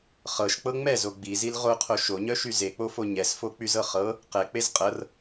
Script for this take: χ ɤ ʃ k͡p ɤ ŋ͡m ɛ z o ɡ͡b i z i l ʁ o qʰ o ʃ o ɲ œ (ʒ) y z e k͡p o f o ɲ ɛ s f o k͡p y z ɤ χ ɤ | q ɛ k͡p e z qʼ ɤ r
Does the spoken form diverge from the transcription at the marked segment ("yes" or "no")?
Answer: yes